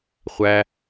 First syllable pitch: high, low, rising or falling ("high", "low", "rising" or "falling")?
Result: low